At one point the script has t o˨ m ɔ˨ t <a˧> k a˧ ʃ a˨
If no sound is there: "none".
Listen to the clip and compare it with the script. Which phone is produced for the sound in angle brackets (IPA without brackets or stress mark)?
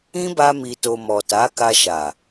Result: a˨˦